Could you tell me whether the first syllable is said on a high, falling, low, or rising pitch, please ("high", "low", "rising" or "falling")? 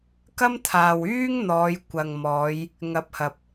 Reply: high